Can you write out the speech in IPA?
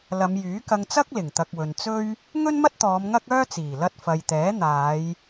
lɐ˨˧mjyː˨˥kɐ˧ŋt͡sɐ˥k̚ lɪ˨˩ŋt̪ɐ˨k̚wɵ˨n t͡sɵ˥ɥ | ŋɵ˥nmɐ˥t̚t̪ɔː˨˧m ŋɐ˥k̚œː˥t͡siː˨˩ lɐ˧t̚fɐ˨jt̪ɛː˨˥ n̪aː˨˧j

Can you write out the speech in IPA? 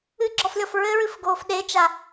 ɨɡ͡ǁɔflʲɔf ɹɘɹɨfɡoːf ɗet͡ʃa

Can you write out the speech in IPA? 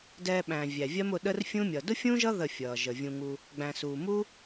dɛː˧ɓæ̃ː˨ vʲæ˨vʲɜ˦mʊ˧ ɗə˦rfʲũ˦mʲʌː˨ dʊ˦fʲũ˦ʒʌ˦ ðə˦˨fʲʌː˨ ʒə˨vʲũ˧ŋu˧ | ɡ͡bæ̃˨suː˨mu˦

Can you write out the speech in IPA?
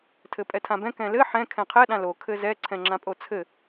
tʰɘpʼɛtʰãbɛ̃ kɛ̃lɘ ħɛ̃ kʰɛ̃qʰɛ ɗãlo kʰɘzɛ ǀʰɛ̃ŋ͡ǁãpʼot͡sʰɘ

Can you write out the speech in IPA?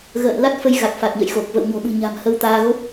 ɣə̰ː˧˨nla˦˥t̚ fə˧jɣa˨˩k̚ fa˨˩t̚ɲə̰˧˨jxo˨˩k̚ və̰˧˨wɲo̤˨˩ɓɨ̤˨˩ɲa̤˨˩m hə˧wt̪aː˧ɣo˦˥p̚

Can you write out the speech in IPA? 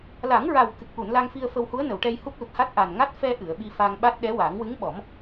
la˨˩˦ŋɹa˨˩w kɨ˨˩k̚ʔu˨˩˨nla˧ŋfi˧ə̯ fə˧whu˧˥ə̯nə˨˩˨wʈɛ˧j hu˦˥p̚lu˨˩t̚ha˦˥t̚ ʔa˨˩nŋa˦˥t̚ fɛ˧ ʔɨ˨˩˨ə̯ɓi˧fa˧ŋɓa˦˥t̚ ɗɛ˧˥wa˨˩˦ŋ wɨ˧˥ŋɓɔ˨˩˦m

